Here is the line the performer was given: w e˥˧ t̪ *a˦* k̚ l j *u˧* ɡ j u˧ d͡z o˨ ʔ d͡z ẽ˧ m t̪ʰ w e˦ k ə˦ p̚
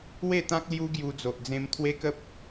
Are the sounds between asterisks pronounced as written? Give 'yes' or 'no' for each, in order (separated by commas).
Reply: no, no